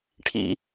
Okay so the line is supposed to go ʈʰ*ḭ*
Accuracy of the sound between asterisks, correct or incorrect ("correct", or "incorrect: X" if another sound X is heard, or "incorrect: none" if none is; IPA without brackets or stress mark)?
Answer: correct